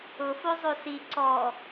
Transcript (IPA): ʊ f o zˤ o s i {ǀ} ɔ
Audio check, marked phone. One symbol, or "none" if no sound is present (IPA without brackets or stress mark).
ǀ